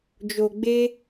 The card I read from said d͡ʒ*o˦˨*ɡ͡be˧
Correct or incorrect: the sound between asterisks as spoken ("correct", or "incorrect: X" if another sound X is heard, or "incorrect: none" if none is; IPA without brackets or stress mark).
incorrect: o˨